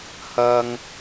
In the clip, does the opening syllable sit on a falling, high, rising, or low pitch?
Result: high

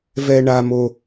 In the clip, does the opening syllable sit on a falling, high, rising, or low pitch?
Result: low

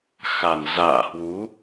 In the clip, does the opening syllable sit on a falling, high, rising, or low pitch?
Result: low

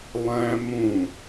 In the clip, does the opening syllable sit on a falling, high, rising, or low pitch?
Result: high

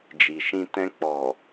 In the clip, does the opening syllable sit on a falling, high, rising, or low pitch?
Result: low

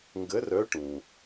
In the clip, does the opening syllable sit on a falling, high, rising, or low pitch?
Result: rising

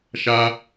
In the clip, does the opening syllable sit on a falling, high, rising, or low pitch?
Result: high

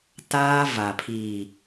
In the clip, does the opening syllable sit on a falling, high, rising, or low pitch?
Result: high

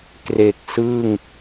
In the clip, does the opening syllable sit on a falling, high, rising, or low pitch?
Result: low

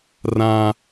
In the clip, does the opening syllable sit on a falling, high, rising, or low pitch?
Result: high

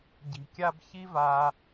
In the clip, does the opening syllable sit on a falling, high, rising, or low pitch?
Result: low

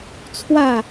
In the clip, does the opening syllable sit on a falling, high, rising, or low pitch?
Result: falling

